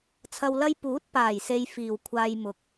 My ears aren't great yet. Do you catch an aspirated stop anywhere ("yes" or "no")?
yes